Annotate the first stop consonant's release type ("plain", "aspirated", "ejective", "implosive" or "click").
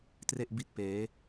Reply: plain